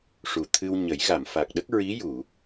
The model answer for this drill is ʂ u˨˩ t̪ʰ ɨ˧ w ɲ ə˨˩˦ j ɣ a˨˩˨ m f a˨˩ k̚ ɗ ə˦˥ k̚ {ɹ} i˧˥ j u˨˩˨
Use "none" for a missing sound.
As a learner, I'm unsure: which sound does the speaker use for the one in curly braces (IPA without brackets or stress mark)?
ɹ